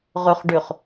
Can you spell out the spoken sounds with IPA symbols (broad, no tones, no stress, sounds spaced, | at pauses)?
ʁ ʉ χ ɖ ʉ χ